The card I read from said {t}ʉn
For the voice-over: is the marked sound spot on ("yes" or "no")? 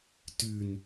yes